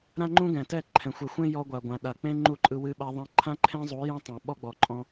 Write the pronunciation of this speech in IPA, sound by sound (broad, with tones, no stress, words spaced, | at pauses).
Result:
ɾã˦ŋ͡ǃũ˦ɡɛ̃˨tɛ˦˨ ǃʰɛ̃˨xʷɛ˨xʷẽ˦ jɔ˧ɡʷa˨ɡʷã˨ ɗa˨k͡pẽ˦ ŋ͡ǃu˦˨ǃʼɯ˧ wɨ˧ɓa˧ ðˤɛ̃˧ǃʰã˦ǃʰẽ˦zˤu˨˦ jɛ̃˦tˤɛ̃˨ ɓɔ˦ɡ͡bɔ˨ǃʼɔ̃˧